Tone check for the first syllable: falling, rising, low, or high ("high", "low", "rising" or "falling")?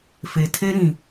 low